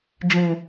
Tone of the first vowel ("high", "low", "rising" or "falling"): low